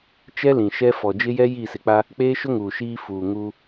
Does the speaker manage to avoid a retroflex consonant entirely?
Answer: yes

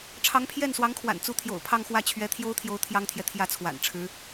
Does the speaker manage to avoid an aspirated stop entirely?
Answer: no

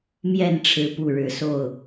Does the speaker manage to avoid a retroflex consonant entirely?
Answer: no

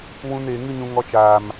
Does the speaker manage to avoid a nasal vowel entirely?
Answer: no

